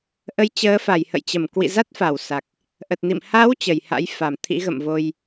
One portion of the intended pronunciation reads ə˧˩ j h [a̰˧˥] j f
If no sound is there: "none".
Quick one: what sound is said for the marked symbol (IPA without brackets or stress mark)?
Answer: a̰˧˥